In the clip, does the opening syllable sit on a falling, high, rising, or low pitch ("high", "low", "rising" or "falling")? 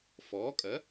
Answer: rising